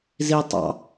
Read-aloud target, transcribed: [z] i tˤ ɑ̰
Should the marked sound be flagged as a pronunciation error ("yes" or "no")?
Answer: no